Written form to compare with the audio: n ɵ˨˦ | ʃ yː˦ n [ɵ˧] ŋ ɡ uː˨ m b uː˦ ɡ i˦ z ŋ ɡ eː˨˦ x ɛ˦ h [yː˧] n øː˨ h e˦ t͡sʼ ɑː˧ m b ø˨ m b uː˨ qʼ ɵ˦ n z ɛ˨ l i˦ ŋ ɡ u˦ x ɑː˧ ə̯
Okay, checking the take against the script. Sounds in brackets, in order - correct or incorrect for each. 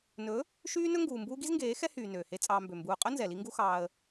incorrect: ɵ˦, incorrect: yː˨

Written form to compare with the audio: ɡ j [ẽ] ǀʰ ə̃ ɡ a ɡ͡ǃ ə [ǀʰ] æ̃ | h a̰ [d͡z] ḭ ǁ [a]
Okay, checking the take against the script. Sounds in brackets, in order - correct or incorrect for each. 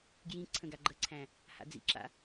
incorrect: ĩ, correct, correct, incorrect: a̰

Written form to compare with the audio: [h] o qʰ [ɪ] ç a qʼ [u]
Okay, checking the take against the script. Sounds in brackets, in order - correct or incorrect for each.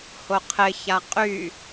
correct, correct, incorrect: y

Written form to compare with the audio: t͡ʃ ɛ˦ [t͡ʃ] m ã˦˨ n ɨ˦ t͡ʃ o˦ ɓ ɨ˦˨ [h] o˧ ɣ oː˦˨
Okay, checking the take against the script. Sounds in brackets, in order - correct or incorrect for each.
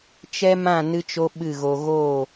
incorrect: none, incorrect: ɣ

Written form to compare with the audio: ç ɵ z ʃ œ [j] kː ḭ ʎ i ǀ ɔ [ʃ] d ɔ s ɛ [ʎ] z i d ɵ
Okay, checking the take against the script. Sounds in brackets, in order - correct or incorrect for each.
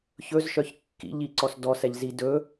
incorrect: ç, incorrect: s, correct

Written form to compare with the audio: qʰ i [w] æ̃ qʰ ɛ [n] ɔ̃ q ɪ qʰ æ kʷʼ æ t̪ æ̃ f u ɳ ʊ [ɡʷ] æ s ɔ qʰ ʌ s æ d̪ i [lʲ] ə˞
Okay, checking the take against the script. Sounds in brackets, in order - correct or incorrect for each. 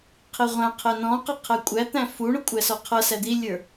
incorrect: ʁʷ, correct, incorrect: kʷʼ, correct

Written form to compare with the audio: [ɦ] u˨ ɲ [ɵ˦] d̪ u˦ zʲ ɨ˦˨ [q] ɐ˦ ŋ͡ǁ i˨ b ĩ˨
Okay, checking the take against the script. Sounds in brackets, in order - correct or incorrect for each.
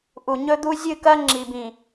incorrect: ʔ, correct, incorrect: k

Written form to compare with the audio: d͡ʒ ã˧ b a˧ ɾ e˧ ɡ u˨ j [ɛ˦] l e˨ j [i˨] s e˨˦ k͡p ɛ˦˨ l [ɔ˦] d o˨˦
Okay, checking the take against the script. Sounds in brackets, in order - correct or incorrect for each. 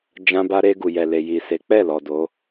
incorrect: ɛ˨, correct, incorrect: ɔ˨

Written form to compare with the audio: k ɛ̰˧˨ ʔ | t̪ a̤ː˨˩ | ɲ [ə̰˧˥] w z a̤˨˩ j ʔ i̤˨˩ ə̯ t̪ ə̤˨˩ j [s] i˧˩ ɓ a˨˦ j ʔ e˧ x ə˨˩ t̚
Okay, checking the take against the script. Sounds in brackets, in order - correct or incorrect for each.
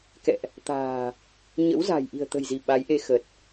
correct, incorrect: z

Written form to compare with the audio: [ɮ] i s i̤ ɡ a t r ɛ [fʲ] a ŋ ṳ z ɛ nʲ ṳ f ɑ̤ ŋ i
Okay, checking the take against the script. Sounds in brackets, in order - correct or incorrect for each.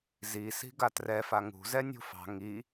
incorrect: z, incorrect: f

